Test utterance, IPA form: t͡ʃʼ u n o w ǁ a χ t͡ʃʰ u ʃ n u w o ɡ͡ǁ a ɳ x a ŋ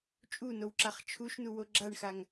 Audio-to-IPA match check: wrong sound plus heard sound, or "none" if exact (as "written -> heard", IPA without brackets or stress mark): none